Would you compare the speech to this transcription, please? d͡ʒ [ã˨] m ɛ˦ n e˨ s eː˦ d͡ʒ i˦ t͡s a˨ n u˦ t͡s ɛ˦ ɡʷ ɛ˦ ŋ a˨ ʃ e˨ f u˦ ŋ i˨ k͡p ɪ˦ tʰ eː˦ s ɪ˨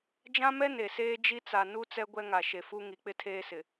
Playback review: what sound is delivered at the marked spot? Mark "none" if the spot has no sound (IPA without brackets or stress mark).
ã˦